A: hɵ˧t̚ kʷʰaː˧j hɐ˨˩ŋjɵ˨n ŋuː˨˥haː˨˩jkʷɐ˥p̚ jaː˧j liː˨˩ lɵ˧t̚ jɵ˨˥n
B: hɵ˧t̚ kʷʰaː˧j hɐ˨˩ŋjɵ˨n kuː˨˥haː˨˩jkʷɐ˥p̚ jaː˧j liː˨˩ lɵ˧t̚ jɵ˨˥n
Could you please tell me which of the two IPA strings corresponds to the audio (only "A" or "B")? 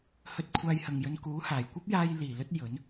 B